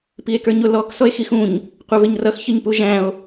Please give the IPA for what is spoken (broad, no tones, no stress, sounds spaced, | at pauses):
p i e̯ k ə˞ ɲ ʊ l ɔ k s ɔ e̯ x i x ũ ɲ | qʷ ɛ v ɪ ɲ r ʌ x ç ɪ ɲ p u ʒ æ̃ o̯